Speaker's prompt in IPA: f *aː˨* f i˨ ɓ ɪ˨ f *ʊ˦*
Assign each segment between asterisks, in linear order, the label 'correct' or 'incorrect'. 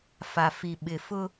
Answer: incorrect, correct

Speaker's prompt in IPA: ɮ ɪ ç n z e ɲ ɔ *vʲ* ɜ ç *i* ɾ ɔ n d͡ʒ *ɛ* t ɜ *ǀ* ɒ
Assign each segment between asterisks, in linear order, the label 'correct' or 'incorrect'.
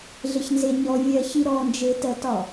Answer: correct, correct, incorrect, incorrect

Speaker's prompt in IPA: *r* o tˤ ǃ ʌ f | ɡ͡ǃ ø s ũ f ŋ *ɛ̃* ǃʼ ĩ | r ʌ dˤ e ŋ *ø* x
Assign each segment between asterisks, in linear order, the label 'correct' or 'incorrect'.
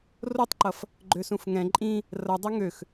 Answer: correct, correct, correct

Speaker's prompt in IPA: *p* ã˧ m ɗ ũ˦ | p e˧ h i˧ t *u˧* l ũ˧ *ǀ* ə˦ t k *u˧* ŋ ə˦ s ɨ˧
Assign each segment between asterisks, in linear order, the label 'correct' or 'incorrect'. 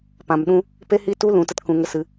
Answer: correct, correct, incorrect, incorrect

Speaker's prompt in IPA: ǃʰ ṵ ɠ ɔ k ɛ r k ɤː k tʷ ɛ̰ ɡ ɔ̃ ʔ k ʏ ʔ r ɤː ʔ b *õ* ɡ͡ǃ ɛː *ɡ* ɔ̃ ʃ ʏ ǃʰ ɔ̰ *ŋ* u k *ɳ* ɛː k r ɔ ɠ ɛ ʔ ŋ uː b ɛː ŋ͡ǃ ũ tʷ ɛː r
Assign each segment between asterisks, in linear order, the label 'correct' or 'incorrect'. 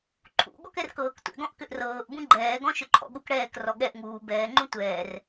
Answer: incorrect, correct, incorrect, incorrect

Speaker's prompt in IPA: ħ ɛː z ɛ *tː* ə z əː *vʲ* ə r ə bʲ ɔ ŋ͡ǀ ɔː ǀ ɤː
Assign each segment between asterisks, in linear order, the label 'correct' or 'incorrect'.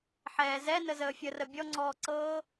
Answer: incorrect, incorrect

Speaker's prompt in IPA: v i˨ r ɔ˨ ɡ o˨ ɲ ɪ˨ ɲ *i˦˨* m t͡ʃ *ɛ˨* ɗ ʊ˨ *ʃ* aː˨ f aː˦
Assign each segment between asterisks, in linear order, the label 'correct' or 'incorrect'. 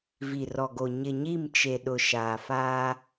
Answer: correct, incorrect, correct

